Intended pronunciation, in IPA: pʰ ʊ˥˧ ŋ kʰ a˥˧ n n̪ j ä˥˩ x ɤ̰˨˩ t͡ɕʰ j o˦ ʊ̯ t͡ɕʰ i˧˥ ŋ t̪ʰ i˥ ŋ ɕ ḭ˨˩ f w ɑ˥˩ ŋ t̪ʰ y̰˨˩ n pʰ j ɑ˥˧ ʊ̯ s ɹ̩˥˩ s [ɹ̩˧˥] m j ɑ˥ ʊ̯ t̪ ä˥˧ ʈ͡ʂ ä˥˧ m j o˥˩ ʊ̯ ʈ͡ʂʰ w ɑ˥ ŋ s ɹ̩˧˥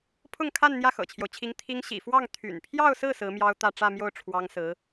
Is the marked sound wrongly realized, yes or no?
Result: no